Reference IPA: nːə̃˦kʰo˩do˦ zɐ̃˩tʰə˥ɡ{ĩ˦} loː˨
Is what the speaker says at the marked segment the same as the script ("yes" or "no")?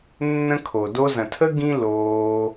yes